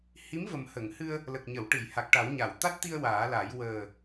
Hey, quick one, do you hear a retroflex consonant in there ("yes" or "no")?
yes